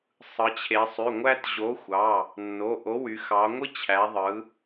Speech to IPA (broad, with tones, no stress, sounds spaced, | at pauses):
sˤ ɯ˩˧ t͡ɕʰ e˩˧ sˤ y˩˧˩ ŋʷ æ˦ t ʑ o˨˥ xʷ ɑ˩˧˩ | nː o˩˧˩ ʔ o˨˥ w y˩˧ x ɑ˩˧ ŋʷ ɯ˦ t͡ɕʰ æ˩˧ ðˤ ɯ˩˧